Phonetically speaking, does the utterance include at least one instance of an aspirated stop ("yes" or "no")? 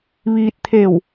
yes